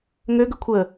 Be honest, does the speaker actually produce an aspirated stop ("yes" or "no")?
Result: yes